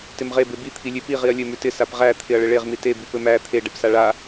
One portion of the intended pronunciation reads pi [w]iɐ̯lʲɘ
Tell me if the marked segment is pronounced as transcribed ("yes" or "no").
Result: no